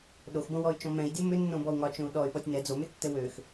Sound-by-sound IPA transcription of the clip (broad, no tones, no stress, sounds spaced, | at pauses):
ɗ o x b õ w ɔ y̯ t͡ʃ ɔ̃ m ɛ̃ i̯ dʲ o m ʏ nː õ b ɔ u̯ ŋ ɒ t͡ʃ õ u̯ ɗ ɔ y̯ ɓ ɔ tʲ n ɛ d͡z o m ʏ tː ɘ w ø x